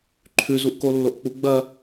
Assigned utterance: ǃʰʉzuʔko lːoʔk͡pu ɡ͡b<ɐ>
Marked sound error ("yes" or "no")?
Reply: no